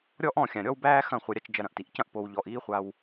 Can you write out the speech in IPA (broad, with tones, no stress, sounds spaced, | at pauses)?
ɾʲ ɔ˦ ʔ ɔ̃˦˨ xʲ ã˨ ɾʲ ɔ˦ w b æː˦ x ɐ̃˦˨ χʷ ɐ˧ ɾʲ a˧ t͡ʃ d͡ʒ ɐ˧ ɾ ɐ̃˨ ʔ t i˨ ʔ c ɐ̃˦ ʔ p o˨ w ʎ ɔ˨ ʔ iː˦ χʷ a˧ w